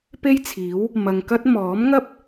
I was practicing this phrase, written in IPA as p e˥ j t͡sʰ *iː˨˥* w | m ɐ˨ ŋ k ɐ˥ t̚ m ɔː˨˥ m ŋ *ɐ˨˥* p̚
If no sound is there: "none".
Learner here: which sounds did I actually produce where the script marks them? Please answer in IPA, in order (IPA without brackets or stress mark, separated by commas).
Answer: iː˨˥, ɐ˥